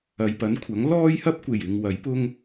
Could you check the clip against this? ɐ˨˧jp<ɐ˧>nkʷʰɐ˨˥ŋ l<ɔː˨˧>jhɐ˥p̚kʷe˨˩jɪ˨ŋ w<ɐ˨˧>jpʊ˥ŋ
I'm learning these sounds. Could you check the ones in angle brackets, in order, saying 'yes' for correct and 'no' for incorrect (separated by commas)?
no, no, no